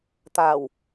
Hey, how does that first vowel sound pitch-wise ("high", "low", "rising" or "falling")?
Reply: low